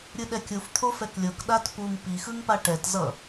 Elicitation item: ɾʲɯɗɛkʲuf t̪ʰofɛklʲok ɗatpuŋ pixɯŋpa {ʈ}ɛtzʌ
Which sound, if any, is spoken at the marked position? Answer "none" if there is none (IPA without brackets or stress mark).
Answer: ʈ